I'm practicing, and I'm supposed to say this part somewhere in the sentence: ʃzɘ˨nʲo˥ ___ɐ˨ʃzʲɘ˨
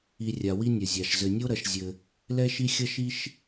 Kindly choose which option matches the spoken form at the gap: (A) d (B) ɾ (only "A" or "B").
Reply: B